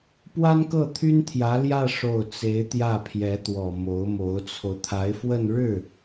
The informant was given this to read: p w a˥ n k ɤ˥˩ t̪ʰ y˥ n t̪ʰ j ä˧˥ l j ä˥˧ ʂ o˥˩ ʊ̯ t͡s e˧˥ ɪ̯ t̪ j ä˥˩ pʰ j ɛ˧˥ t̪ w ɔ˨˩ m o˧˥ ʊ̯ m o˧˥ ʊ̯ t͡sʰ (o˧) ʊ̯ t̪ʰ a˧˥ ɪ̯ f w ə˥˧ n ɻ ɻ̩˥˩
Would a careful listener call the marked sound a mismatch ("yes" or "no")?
no